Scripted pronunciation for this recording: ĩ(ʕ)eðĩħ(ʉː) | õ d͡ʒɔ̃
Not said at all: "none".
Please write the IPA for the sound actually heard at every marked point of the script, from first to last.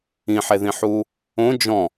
ħ, uː

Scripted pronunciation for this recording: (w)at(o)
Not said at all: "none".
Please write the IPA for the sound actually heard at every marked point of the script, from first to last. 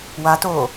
w, oː

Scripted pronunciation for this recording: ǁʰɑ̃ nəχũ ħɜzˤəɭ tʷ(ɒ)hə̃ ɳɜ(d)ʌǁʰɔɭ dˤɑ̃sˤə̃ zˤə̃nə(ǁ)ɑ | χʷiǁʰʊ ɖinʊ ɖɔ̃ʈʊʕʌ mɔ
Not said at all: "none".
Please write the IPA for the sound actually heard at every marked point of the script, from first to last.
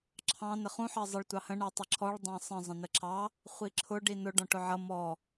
ɑ, tˤ, ǁ

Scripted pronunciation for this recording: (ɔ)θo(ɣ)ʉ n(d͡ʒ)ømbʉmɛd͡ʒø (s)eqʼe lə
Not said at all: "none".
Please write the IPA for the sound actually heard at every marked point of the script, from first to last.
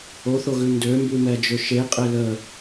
o, ɣ, d, ʃ

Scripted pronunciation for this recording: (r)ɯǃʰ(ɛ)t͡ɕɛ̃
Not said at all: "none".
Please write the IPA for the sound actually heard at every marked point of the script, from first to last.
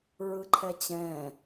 ɹ, ɛ

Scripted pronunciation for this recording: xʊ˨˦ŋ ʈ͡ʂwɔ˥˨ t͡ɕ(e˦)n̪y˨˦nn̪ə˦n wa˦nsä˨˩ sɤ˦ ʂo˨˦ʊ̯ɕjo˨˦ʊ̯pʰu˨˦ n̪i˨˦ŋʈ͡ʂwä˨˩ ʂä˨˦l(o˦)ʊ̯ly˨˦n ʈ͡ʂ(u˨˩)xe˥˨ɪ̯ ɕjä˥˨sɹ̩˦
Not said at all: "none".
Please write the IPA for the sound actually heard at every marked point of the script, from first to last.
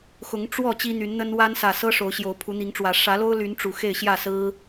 i˦, o˦, u˨˩

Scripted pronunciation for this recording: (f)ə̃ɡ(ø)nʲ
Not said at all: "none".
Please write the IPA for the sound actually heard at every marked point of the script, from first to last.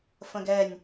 f, ɛ

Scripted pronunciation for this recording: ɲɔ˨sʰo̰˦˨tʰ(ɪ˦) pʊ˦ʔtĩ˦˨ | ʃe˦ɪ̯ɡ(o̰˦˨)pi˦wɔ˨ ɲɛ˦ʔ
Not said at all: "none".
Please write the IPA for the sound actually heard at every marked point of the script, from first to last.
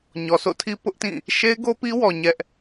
i˦, o˦

